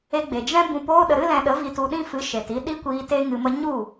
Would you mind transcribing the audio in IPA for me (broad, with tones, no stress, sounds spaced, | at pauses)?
e˧ ɡ͡b e˨ d͡ʒ ɛ̃˦ b ũ˧ p oː˦ ɗ ə˧ ɾ ɨ˦ l ɛ̃˧ ɗ ə˨˦ v i˧ t u˧ ɗ ĩ˦ f ɨ˨˦ ʃ e˨ t i˧ ɗ i˦ kʷ iː˧ t e˦ ŋ ɨ˧ m ə˦ ɲ u˦˨